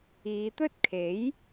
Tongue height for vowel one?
high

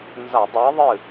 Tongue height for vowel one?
low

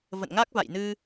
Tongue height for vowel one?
mid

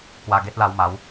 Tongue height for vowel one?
low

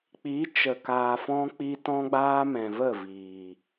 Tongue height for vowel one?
high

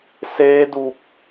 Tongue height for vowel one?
mid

